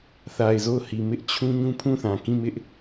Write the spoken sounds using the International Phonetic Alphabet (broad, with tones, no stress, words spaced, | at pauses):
θa˨ɪ̯zo˦˨ʊ̯hi˨ mɪ˦ʔ t͡ɕʰũ˦ ɲũ˦pʰũ˦˨θã˨ kĩ˦˨mɪ˦ʔ